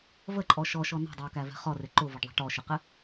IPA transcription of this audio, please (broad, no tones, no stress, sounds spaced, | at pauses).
v ə ǃʼ ɔ ʃ ɔ ʃ ɔ n ɔ̤ dˤ ɛ ʊ̯ k æ v ɛ̤ χ ɔ r ɪ ǃ ʊ v ʌ ɖ ðˤ ɛ̤ ʈ ɔ ʃ ɪ q ɪ